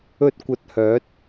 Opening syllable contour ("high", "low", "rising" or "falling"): high